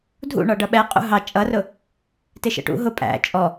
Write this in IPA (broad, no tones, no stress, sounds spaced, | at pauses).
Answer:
dʱ ṵ ɳ ɒ ɖ ʌ ɓ ɛ qʼ ṵ ɦ ɑ t͡ʃʼ ʌ r ʊ | t ɪ ʃ ə̰ ʈ ṵ ɦ ʊ pʼ æ̰ t͡ʃʼ ɔ